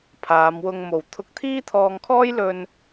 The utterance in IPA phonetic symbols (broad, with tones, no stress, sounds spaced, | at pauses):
pʰ aː˨˧ m w ʊ˧ ŋ m o˨ w t̪ʰ ʊ˧ k̚ t̪ʰ iː˥ t̪ʰ ɔː˧ ŋ kʰ ɔː˥ j l ɵ˧ n